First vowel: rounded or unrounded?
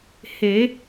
unrounded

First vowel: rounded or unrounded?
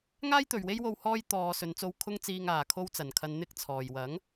unrounded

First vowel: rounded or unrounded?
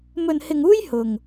rounded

